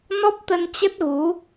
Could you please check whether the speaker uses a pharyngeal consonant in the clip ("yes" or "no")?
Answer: no